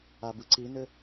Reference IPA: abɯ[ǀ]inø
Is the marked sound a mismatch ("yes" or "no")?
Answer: no